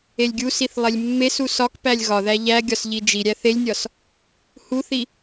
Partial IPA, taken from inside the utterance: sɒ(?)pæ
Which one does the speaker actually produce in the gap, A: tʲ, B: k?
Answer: B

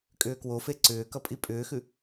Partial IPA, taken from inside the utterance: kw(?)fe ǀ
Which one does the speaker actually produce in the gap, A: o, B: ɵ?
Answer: A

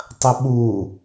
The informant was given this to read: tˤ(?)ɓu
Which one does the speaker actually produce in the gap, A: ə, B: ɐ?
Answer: B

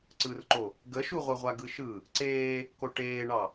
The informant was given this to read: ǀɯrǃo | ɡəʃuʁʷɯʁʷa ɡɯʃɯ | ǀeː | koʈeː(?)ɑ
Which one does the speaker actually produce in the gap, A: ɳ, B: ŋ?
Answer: A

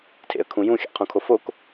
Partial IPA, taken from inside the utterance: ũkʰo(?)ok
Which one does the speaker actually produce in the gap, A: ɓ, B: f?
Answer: B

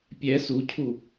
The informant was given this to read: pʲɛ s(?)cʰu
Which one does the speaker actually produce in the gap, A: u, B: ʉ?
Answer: A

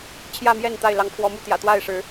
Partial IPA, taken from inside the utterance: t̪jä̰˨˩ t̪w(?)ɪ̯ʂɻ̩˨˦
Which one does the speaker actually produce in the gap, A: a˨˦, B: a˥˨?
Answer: B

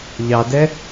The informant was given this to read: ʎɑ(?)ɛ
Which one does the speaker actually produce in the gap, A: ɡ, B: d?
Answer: B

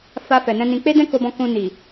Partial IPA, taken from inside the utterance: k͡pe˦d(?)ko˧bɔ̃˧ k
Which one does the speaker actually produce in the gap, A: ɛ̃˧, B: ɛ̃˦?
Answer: B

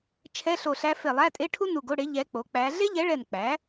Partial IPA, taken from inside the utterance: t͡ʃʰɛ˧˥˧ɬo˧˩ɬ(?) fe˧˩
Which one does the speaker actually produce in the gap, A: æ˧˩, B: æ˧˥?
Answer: B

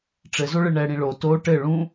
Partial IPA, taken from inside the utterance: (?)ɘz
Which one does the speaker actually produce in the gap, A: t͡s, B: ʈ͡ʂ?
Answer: B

